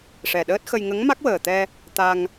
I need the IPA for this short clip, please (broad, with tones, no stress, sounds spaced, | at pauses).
ʂ ɛ˨˩ ɗ əː˦˥ t̚ x ə˧ j ŋ ə˧˥ ŋ m a˦˥ k̚ w əː˨˩ t̪ ɛ˧ | t̪ a˧ ŋ